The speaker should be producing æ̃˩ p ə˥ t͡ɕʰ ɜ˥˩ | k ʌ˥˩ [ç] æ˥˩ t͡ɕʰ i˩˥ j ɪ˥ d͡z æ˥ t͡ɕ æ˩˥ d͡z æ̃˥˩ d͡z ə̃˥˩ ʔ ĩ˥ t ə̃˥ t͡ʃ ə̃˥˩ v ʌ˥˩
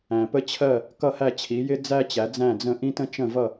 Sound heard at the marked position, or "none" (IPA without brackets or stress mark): h